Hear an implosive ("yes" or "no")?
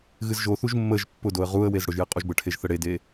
no